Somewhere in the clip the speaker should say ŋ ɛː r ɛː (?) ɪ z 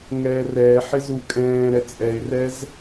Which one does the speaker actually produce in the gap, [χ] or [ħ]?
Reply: ħ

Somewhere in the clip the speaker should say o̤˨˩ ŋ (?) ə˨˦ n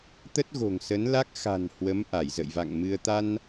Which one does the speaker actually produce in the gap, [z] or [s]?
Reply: s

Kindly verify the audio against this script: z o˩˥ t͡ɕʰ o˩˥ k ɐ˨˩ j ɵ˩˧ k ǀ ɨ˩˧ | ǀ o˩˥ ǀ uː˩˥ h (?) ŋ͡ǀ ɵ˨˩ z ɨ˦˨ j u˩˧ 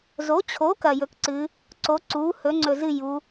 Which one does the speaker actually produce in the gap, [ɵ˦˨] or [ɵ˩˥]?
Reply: ɵ˩˥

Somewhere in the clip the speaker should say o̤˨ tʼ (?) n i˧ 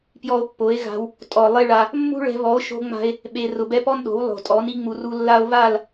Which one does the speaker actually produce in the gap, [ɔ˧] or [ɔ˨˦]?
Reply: ɔ˨˦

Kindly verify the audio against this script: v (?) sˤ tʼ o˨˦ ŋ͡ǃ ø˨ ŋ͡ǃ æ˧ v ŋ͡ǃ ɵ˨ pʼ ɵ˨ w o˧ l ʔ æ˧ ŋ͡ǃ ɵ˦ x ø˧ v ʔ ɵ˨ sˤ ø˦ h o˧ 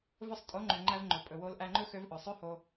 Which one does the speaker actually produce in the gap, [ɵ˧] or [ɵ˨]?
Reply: ɵ˧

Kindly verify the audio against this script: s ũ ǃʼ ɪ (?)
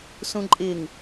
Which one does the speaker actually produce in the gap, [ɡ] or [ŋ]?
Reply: ŋ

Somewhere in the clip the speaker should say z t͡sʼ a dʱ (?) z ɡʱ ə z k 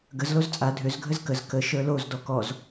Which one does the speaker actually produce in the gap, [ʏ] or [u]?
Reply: ʏ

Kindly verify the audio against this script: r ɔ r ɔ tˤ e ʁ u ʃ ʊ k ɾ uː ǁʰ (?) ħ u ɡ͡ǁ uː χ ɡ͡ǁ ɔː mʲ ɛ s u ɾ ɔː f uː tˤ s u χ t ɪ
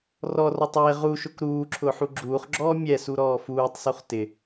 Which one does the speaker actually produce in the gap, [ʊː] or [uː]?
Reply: ʊː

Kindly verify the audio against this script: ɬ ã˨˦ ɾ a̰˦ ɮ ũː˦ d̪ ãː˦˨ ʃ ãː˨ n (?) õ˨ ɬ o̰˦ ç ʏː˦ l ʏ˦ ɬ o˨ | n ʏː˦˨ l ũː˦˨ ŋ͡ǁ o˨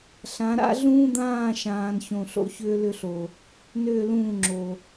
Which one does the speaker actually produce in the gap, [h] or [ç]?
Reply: ç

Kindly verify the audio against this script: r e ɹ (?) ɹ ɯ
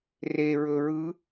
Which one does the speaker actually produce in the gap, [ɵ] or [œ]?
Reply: ɵ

